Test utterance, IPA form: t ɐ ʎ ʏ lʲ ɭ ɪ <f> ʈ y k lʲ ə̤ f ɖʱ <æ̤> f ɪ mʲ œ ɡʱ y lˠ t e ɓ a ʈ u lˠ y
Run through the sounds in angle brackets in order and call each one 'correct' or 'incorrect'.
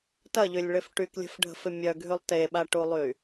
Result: correct, incorrect: ə̤

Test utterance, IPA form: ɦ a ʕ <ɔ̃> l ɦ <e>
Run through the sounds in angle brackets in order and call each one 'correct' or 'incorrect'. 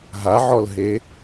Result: incorrect: ɔ, correct

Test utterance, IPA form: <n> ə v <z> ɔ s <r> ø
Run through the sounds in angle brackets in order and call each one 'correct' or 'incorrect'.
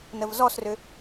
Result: correct, correct, correct

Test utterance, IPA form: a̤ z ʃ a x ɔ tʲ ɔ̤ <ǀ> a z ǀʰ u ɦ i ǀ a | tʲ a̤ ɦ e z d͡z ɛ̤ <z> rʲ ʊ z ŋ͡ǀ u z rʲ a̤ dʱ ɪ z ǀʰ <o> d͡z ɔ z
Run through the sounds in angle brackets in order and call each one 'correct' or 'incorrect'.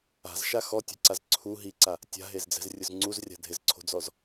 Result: correct, correct, incorrect: o̤

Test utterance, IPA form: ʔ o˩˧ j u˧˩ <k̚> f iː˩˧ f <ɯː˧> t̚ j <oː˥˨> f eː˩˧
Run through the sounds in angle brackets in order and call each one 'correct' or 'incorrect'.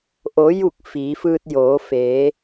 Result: correct, correct, incorrect: oː˩˧

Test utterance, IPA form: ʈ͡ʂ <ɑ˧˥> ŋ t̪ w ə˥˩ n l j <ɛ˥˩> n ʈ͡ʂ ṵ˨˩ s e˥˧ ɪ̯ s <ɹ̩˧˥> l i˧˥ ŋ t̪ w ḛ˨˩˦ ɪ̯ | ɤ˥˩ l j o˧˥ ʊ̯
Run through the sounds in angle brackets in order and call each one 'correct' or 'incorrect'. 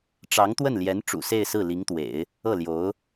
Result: correct, incorrect: ɛ˧˥, incorrect: ɹ̩˥˩

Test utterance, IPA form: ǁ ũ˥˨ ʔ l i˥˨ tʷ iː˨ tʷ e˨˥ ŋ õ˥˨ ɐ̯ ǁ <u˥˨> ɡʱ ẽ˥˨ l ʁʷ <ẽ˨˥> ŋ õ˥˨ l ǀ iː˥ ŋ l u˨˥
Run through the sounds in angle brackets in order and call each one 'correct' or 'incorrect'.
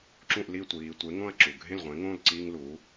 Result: incorrect: u˨, correct

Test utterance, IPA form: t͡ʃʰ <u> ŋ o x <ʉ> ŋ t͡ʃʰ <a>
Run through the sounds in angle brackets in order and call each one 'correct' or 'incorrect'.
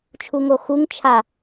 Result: correct, incorrect: u, correct

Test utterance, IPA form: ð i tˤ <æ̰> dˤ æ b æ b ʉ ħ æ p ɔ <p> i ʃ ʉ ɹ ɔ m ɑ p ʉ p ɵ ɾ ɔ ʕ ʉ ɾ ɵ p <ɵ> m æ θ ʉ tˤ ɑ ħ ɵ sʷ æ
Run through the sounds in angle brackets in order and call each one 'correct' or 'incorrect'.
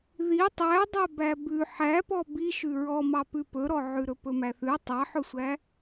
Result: incorrect: æ, incorrect: b, correct

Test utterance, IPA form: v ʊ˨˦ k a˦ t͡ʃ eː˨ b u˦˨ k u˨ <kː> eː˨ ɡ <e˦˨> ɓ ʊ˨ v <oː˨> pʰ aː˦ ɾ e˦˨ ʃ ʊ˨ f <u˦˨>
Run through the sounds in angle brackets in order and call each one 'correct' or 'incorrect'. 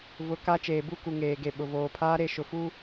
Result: incorrect: ŋ, incorrect: e˨, correct, incorrect: u˦

